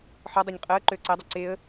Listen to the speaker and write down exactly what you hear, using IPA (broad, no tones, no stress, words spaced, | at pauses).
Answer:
ħɔdˤøɲ qʼɤə̯ ǃøə̯ǀɜdˤɜ ǀeə̯